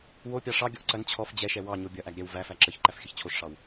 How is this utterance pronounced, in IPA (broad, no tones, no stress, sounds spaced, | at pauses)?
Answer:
w o pʲ ɑ ʂ ɑ ɡʲ ɔ ʔ ǀ ɐ n t͡ɕʰ ɔ f d͡ʑ ɛ ʃ ɛ w ɑ ɲ o bʲ ɐ ʔ æ ɡ ɾʲ ɛ w v æ f æ ǁ ə ç ǃ æ f xʲ ə ç t͡ɕʰ o ʃ ʂ ɑ w